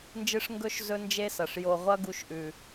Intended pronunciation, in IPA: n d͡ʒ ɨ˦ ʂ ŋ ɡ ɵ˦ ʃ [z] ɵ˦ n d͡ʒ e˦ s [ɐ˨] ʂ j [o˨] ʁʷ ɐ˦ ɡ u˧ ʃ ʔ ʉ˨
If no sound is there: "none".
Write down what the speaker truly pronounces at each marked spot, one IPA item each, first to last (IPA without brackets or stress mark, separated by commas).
z, ɐ˨, o˨